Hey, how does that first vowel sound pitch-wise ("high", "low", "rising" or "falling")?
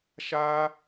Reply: high